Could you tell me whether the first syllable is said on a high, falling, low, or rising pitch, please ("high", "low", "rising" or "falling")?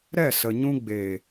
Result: falling